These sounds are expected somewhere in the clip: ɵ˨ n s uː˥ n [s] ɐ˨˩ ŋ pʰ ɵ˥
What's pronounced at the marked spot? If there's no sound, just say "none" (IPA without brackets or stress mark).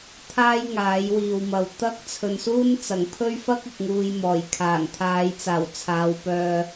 t͡s